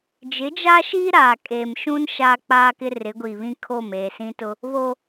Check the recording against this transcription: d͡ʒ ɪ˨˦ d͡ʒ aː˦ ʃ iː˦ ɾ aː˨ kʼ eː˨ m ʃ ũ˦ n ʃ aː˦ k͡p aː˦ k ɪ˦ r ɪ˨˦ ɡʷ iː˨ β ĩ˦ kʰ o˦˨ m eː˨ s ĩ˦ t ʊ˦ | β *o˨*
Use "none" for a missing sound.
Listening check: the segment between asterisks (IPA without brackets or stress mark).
o˦